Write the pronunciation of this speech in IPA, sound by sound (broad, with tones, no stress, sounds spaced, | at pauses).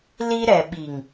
l i˦ ɾ ɛ˨ ɓ i˨ ŋ